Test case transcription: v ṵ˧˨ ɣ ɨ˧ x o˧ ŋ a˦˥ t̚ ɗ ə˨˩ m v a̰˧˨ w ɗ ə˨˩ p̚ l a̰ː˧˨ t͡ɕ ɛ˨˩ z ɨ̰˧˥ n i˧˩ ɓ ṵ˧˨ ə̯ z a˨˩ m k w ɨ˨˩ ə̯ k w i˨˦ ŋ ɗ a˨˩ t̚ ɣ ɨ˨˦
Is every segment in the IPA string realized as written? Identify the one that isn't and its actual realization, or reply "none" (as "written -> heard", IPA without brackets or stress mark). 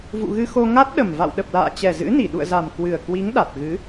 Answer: ɓ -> ɗ